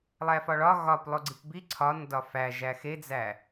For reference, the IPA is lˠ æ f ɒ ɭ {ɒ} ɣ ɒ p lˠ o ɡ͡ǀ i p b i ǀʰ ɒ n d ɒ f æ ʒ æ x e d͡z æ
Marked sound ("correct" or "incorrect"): correct